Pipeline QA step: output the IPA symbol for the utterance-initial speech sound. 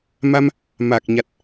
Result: m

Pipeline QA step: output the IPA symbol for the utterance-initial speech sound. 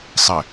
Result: sˤ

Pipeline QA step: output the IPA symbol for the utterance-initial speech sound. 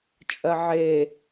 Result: t͡ʃʼ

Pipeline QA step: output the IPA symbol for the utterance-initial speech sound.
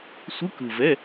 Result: sʷ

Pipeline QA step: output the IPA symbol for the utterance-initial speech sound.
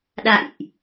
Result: ɗ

